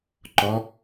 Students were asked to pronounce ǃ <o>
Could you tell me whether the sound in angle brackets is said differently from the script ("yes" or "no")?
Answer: yes